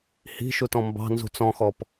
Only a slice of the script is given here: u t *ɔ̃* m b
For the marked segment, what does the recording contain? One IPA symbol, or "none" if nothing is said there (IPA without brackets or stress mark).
ɔ̃